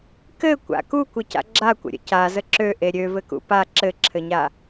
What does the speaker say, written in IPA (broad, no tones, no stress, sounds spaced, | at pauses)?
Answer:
k ɘ kʷ a̰ k u kʷ ɘ c a̰ ɡ͡ǁ a kʷ ə̰ ɾʲ ə̰ c a z ə ǁ ø ʔ e ɾʲ ø v ɘ k ṵ p a ǁ ɘ ǁʰ ɘ ɲ a